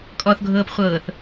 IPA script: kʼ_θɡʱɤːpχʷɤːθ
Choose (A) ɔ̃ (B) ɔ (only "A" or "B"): B